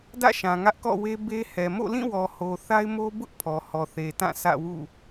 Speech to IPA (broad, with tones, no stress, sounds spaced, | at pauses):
d ä̰˦˨ ʃ ã˨ ŋ ä˦ ʔ k ɔ̰˦˨ w e˦ b e˦ h ɛ˨ m o̰˦˨ l ĩ˦˨ w ɔ˨ h o˨ θ a˦ ɪ̯ m o˦ b ʊ˦ ʔ pʰ ɔ˨ h ɔ˨ θ e˨ t ã˦˨ s ä̰˦˨ w ṵ˦˨